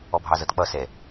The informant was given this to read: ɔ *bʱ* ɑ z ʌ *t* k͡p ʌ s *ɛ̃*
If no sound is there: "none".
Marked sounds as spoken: bʱ, t, ɛ

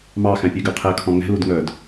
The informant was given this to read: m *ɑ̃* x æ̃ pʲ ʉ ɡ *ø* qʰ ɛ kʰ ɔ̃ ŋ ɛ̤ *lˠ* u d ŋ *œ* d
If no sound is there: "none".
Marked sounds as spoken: ɑ, ø, l, œ

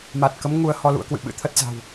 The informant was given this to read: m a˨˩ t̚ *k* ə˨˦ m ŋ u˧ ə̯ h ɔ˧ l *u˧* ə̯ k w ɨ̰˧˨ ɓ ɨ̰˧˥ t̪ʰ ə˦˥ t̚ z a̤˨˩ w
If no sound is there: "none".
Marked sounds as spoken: k, ṵ˧˥

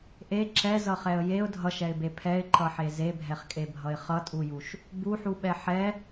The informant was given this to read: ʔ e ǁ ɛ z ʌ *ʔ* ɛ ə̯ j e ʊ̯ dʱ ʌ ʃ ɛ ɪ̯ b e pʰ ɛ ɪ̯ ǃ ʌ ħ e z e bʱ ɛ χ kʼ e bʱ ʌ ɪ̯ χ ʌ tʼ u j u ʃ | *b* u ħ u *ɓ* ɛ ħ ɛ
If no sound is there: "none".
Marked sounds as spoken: χ, b, ɓ

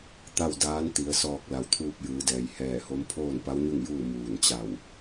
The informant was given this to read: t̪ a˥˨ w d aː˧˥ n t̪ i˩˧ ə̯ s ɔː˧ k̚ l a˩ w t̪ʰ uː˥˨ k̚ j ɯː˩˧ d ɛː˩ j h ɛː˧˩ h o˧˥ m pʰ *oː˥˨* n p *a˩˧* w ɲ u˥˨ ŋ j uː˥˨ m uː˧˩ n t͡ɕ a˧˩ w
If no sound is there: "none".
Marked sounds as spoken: oː˥˨, a˧˥

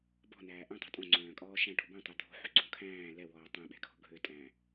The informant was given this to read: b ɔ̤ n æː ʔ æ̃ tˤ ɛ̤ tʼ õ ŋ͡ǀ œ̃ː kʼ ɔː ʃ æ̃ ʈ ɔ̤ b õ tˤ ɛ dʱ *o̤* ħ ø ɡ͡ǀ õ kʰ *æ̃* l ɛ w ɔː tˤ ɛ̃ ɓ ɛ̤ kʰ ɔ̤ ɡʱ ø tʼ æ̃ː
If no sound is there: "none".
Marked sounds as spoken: o̤, æ̃ː

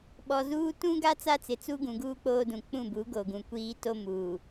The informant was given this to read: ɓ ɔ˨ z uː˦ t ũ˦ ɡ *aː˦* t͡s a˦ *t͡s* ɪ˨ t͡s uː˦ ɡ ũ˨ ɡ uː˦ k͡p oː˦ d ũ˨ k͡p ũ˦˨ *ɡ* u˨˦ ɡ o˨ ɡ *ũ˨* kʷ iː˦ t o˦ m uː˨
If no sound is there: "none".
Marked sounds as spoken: a˦, t͡s, b, ũ˨

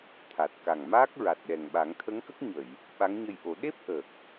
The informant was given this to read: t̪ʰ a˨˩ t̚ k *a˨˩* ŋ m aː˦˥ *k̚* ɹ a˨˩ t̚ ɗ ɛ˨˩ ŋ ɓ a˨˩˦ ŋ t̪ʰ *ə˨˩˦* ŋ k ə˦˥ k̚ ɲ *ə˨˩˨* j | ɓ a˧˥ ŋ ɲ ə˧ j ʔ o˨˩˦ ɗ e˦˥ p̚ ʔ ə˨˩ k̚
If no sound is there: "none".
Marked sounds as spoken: a˨˩, k̚, ə˧˥, ə˨˩˨

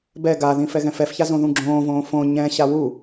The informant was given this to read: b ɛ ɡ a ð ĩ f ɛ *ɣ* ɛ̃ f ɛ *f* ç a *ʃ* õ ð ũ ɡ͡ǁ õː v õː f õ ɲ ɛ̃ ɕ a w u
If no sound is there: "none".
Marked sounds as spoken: ɣ, f, z

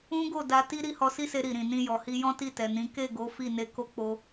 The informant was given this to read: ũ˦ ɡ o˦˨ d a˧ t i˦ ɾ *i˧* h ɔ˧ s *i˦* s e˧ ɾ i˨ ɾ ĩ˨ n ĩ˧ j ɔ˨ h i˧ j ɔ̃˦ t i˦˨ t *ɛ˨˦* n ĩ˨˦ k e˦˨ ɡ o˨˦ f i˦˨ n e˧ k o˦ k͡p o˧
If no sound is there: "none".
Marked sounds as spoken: i˦, i˦, ɛ˨

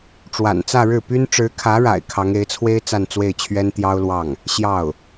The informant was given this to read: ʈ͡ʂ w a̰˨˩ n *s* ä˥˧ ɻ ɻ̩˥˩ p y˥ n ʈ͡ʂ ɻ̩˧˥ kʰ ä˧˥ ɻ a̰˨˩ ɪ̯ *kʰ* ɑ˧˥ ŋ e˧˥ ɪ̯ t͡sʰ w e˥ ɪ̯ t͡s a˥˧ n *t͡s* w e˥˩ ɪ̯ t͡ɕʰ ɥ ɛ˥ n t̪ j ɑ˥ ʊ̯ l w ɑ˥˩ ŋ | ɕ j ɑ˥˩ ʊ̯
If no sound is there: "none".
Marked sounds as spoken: t͡s, kʰ, t͡s

